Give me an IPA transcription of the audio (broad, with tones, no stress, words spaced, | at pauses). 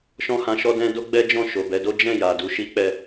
ʃɔ̃˦hã˧ʃɔ˦dɛ̃˦ do˦ɡ͡bɛ˦d͡ʒɔ̃˦˨ ʃo˨bɛ˨˦do˦ d͡ʒɛ̃˦˨ ja˨du˨˦ ʃi˦k͡pɛ˦˨